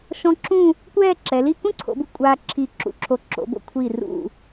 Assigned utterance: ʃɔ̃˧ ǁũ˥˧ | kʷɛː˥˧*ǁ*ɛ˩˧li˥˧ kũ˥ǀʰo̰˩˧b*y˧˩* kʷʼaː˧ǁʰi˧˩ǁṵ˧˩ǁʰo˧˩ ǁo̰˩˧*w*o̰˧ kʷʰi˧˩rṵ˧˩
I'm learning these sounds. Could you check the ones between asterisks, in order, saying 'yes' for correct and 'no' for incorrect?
yes, no, no

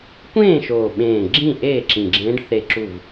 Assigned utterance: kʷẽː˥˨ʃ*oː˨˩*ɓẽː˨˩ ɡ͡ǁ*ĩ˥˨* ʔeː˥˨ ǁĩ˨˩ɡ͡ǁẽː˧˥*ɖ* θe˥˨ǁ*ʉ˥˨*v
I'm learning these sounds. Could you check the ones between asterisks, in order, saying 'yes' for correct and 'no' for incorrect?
yes, yes, yes, no

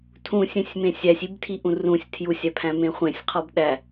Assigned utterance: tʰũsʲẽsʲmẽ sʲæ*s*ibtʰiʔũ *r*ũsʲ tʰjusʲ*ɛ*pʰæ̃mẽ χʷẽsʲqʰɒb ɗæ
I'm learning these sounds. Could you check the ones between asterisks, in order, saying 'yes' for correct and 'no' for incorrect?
no, yes, no

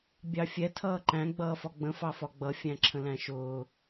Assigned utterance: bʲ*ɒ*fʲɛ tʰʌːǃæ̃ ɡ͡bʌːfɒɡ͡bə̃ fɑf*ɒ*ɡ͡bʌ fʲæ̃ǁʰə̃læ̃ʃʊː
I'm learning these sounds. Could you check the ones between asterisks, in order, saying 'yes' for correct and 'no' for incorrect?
no, yes

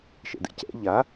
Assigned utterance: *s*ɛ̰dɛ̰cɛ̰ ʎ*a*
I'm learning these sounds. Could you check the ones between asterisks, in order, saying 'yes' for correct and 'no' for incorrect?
no, yes

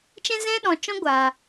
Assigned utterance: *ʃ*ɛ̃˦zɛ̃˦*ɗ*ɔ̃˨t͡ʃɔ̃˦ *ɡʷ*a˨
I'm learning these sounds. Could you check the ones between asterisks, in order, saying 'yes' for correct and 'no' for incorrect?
no, yes, yes

